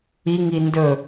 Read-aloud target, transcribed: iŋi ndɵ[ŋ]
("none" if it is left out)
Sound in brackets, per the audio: none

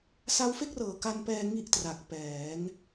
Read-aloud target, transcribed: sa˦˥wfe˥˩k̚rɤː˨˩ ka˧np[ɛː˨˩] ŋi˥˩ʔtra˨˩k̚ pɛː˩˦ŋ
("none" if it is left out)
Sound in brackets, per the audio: ɛː˧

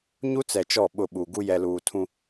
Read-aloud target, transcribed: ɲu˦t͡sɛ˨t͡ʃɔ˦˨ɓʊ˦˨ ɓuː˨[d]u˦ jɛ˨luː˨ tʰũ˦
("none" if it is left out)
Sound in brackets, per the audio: ɡ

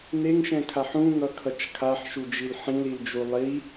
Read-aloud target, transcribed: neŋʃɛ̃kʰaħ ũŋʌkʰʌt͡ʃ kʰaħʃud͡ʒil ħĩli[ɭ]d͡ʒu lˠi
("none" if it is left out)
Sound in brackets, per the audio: l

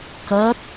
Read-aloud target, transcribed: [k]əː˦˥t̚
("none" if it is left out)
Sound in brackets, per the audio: k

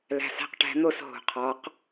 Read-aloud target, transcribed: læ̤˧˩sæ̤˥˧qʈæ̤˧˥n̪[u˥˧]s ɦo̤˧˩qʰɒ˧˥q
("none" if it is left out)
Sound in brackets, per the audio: o˥˧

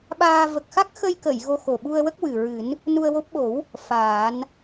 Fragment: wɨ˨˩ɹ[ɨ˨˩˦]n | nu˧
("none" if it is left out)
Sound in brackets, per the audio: ɨ˨˩˦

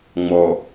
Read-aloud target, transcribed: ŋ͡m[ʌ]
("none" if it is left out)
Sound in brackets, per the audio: ɔ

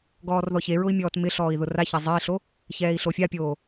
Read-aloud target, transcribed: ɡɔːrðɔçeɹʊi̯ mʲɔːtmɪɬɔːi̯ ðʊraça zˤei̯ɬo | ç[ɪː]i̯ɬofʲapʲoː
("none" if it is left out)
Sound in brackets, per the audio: ɛː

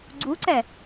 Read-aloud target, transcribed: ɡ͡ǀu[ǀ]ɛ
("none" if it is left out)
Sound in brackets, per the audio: ǀ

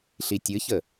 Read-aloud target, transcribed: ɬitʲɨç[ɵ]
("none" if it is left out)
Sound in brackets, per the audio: ə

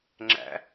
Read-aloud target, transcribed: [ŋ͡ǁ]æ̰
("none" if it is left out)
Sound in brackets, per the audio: ŋ͡ǁ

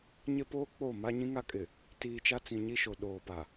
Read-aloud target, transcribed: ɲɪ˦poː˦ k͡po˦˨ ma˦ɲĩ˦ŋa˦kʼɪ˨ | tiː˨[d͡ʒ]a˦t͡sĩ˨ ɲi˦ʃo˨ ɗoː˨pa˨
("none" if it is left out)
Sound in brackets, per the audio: t͡ʃ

